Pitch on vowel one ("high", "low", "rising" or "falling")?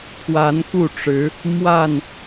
rising